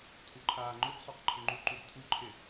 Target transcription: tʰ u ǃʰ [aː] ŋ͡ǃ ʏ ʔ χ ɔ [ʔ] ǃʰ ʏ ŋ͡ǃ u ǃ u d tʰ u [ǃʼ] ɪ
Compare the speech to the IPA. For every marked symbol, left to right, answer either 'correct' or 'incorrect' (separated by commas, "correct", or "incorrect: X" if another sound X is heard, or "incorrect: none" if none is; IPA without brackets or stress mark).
correct, incorrect: q, incorrect: ǃʰ